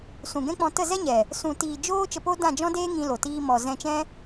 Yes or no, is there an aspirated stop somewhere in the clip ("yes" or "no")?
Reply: no